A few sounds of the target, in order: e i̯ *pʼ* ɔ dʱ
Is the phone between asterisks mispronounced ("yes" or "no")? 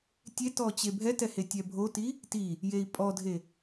no